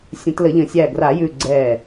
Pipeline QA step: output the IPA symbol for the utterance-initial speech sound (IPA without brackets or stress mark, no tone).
sʲ